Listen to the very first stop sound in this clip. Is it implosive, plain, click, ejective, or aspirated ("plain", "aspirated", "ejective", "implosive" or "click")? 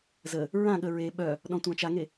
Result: implosive